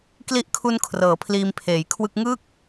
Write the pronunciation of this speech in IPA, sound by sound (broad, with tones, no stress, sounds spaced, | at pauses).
k l i˦˥ ʔ kʰ u˧ n kʰ r ɤː˩˦ pʰ l iː˧ m pʰ eː˩˦ j kʰ w ɯ˥˩ k̚ ŋ ɯː˥˩ k̚